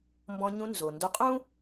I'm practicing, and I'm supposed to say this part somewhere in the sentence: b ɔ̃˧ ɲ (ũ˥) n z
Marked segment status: incorrect: ũ˧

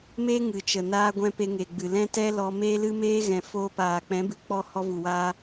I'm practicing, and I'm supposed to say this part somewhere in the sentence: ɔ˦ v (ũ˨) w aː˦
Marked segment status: incorrect: u˨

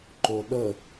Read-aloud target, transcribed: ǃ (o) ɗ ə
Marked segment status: correct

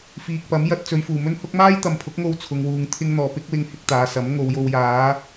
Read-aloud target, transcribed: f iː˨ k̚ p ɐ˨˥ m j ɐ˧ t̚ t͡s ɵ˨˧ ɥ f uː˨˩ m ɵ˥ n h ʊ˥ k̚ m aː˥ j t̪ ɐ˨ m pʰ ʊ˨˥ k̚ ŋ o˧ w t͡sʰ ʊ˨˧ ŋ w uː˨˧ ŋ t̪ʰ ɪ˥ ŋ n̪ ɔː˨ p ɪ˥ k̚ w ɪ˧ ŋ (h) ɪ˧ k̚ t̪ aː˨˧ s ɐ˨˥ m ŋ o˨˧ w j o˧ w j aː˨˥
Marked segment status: correct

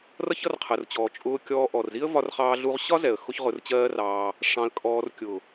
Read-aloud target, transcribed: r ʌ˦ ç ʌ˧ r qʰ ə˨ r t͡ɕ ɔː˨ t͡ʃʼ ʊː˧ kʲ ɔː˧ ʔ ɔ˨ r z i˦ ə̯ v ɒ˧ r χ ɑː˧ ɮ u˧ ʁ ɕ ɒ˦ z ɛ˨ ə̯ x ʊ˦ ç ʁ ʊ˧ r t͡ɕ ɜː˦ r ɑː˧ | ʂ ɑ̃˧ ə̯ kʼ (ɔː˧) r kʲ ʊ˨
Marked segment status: correct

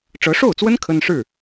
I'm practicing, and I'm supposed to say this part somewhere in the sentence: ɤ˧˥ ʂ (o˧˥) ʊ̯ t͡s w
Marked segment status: incorrect: o˥˩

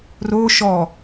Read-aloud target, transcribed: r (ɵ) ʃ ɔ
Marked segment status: incorrect: o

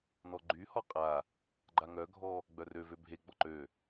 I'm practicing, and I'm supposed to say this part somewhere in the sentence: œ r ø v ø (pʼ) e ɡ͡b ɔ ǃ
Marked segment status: incorrect: bʱ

